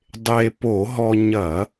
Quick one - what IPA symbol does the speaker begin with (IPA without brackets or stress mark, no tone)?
dˤ